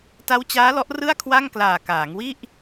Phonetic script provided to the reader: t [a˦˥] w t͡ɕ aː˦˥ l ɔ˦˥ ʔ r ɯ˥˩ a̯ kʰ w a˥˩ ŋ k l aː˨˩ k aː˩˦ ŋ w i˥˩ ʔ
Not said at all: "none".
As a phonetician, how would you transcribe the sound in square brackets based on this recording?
a˦˥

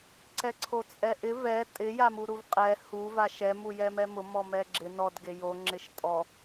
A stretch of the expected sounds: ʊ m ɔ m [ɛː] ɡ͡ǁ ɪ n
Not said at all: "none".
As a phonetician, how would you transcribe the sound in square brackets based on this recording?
ɛ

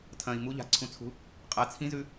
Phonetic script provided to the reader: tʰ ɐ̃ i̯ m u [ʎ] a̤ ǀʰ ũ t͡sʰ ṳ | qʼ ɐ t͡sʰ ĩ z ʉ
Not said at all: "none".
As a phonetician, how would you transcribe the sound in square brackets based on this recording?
ʎ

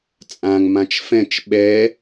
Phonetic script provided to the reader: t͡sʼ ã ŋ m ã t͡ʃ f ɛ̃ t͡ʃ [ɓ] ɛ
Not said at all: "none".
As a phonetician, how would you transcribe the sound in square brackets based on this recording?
ɓ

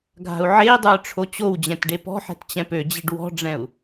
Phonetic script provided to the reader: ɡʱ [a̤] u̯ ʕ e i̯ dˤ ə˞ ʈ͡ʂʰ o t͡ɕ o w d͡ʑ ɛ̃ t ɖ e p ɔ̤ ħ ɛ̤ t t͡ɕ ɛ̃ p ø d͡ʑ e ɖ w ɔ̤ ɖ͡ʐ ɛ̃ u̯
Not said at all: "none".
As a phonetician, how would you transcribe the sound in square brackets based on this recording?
a̤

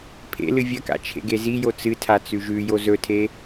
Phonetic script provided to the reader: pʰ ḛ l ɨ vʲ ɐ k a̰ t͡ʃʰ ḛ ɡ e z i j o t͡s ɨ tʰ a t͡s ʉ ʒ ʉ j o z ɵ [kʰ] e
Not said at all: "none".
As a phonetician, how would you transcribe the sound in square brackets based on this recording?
tʰ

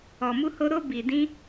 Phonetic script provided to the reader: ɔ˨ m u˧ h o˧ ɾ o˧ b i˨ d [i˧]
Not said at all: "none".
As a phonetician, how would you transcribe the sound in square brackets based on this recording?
ĩ˧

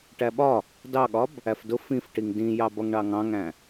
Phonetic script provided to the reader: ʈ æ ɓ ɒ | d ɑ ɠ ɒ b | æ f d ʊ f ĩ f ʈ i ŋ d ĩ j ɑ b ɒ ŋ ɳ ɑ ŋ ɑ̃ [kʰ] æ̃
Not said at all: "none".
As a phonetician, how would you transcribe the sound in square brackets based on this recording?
ŋ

